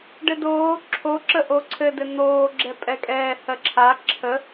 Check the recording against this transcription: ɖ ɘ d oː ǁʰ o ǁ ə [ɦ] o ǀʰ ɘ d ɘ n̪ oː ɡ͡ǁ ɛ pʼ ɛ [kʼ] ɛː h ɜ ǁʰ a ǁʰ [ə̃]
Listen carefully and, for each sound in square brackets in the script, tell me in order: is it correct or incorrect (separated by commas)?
incorrect, correct, incorrect